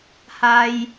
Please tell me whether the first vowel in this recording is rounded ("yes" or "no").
no